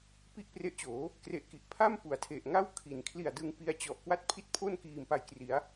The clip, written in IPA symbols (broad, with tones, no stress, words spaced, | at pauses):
pi˥˩ʔpre˦˥ʔt͡ɕoː˩˦ | kre˨˩ʔki˨˩ʔpʰa˥˩m pu˩˦a̯tʰe˨˩ʔŋa˥˩w kʰi˩˦nkʰli˨˩a̯dɯ˧ŋ pi˧a̯ t͡ɕɔ˨˩ʔ kwa˥˩t̚pʰi˥˩t̚ pʰo˥˩nkiː˨˩m pa˨˩jkri˩˦a̯